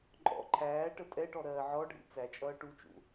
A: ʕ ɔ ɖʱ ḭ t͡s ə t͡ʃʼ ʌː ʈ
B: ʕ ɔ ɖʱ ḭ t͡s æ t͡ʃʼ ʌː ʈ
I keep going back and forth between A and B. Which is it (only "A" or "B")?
B